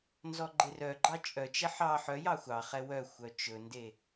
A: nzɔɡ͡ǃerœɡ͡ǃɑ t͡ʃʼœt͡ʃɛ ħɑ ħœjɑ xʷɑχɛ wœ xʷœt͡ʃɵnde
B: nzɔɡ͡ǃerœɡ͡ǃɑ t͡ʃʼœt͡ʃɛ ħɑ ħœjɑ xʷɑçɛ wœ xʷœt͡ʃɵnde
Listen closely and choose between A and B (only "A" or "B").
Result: A